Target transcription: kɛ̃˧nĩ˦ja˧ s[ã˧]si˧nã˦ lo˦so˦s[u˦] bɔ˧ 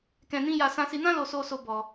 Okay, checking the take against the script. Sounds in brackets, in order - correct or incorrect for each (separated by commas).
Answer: correct, incorrect